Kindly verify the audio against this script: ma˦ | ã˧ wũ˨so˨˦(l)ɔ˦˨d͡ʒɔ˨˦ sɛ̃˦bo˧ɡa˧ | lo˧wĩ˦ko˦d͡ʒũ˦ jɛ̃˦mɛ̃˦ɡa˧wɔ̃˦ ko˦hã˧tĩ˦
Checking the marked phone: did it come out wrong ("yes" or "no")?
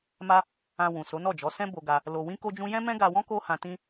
yes